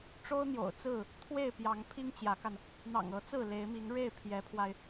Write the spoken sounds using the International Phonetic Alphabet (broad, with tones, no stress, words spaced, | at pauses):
ʈ͡ʂo˦ʊ̯n̪jo̰˨˩ʊ̯t͡sɹ̩˥˨ | t̪ʰwe˥˨ɪ̯pjɑ˨˦ŋ pʰi˦ŋt͡ɕjä˨˦ka˧n | n̪ɑ̰˨˩ŋɤ˨˦ t͡sɹ̩˥˨le˨˦ɪ̯mi˨˦ŋ ɻe˥˨ɪ̯pʰjɛ˨˦pʰwa˧ɪ̯